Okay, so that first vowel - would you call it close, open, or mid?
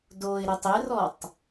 mid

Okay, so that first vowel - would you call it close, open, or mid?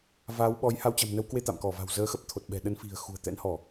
open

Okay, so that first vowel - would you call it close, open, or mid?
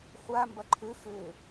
open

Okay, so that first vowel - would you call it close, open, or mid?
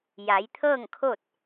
open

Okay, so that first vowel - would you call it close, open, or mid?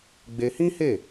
mid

